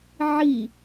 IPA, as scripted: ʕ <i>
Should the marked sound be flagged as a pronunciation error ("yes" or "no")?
no